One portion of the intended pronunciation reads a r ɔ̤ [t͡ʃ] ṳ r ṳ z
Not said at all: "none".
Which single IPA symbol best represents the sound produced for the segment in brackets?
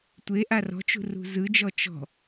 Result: t͡ʃ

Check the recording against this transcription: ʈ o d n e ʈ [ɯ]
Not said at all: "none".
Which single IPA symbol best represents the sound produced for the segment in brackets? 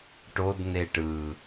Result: ɯ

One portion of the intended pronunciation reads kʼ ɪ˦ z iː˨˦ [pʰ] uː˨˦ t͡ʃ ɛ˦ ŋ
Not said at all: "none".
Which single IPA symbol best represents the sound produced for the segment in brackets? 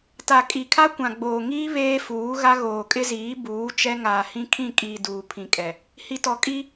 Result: b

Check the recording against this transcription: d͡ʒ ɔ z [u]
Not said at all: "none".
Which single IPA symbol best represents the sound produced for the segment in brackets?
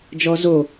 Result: o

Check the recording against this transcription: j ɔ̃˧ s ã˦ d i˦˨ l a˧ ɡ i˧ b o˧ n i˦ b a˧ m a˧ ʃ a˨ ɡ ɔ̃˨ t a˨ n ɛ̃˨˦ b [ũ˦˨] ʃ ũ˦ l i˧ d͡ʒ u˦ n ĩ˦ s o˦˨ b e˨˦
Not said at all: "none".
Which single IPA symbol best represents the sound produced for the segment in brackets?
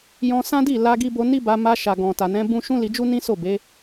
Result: ũ˦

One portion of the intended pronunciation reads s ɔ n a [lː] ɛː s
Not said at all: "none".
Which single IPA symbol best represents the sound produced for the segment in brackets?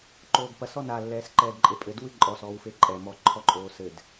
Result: lː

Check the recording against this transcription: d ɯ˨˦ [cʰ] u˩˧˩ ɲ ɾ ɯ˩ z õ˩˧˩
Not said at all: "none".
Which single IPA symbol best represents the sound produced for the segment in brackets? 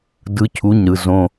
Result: cʰ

